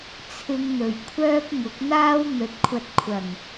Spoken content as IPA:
t͡sʰ ɪ˧ ŋ n̪ ɵ˨˩ ɥ kʷʰ œː˥ p̚ ŋ ʊ˨˥ k̚ n̪ aː˥ w n̪ ɵ˨ t̚ kʷʰ ɐ˧ t̚ kʷʰ ɐ˨˩ ŋ

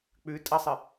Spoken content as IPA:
k͡p ʉ tʼ ɐ sˤ ɨ

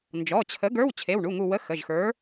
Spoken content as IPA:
n d͡ʒ ɔ˩˧˩ t͡ɕʰ ə˨˥ ɡ ə˞˧˥˧ w t͡ɕʰ e˩˧˩ w ɳ u˩˧˩ ŋ u˧˩ w ə˧˥˧ x ə˩˧˩ ʒ x ə˞˨˥

